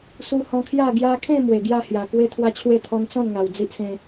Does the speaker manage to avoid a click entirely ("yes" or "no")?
yes